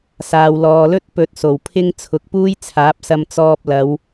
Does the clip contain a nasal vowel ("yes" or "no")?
no